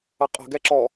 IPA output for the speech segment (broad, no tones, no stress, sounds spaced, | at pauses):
ʌ qʼ ə̤ ɡ ɛ ǁ ɔ